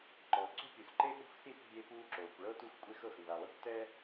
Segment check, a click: present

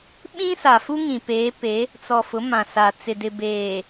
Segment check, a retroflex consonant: absent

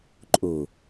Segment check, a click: present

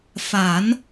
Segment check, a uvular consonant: absent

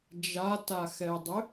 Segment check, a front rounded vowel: present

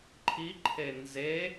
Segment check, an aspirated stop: present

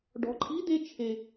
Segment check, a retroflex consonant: present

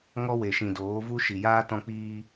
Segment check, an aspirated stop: absent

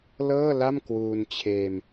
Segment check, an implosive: absent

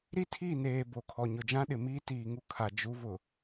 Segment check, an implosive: present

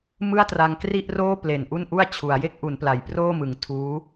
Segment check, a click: absent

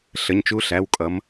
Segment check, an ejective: present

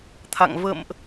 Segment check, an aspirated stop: present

